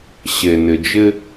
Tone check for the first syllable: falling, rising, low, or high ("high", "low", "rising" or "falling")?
low